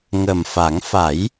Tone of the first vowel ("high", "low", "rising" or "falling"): low